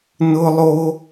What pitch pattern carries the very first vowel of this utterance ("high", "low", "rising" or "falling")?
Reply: high